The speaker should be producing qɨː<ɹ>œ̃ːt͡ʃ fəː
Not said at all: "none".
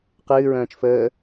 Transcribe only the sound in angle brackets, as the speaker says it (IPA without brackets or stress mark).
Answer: ɹ